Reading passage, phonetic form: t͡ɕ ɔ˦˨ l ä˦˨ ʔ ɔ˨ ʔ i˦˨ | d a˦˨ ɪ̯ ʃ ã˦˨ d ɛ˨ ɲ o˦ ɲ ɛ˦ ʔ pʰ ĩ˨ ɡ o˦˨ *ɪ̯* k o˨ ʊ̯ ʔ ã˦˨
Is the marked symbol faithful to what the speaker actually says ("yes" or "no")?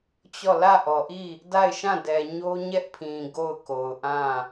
no